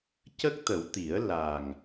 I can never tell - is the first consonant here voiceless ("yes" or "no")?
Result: yes